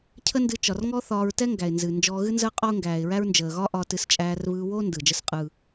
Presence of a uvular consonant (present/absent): present